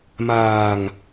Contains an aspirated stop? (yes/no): no